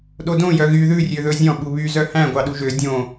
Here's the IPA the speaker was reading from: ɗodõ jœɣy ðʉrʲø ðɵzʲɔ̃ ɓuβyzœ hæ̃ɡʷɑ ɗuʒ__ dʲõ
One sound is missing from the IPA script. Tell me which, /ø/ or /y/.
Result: ø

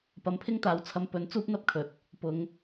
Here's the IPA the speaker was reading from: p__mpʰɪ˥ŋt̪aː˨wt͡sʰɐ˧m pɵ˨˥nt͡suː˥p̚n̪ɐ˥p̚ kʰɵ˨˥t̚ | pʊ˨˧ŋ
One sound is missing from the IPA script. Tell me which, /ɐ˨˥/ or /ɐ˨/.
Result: ɐ˨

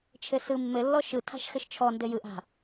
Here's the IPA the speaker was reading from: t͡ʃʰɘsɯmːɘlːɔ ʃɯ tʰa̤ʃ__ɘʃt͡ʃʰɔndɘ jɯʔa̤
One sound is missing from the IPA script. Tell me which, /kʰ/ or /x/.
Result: x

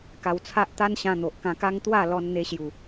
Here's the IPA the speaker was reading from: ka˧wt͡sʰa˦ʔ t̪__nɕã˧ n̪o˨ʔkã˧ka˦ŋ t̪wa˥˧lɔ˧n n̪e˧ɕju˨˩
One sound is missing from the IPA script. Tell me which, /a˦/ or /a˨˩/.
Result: a˦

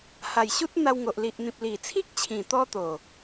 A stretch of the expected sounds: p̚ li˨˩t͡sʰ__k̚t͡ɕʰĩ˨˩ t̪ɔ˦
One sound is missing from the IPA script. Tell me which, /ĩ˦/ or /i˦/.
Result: i˦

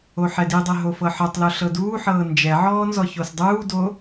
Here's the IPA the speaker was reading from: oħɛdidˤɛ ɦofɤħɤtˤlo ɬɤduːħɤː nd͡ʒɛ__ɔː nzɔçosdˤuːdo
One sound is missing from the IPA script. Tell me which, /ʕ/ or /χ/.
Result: ʕ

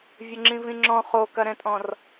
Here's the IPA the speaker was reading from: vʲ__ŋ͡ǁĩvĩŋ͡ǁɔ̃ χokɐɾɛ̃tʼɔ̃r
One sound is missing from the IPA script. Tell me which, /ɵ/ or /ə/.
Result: ə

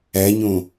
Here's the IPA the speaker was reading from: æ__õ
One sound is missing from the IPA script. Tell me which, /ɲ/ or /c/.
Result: ɲ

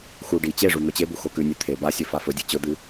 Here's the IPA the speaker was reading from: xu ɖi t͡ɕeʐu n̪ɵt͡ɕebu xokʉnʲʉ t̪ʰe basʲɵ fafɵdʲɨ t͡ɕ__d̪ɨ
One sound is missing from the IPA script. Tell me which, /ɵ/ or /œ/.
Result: ɵ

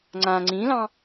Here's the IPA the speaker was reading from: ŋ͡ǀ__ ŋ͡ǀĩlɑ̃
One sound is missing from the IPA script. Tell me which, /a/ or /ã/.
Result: ã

